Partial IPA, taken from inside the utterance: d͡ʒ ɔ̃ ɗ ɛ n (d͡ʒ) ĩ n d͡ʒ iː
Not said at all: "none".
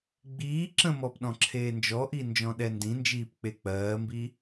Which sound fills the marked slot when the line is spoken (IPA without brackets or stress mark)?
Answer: d